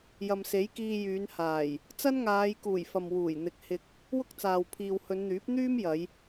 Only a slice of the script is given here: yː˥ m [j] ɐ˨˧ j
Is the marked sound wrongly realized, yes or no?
no